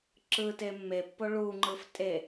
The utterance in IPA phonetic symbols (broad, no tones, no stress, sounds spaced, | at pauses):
ǁ ɯ t e mː e pː o ɭ u ŋ͡ǃ ɯ f tʼ e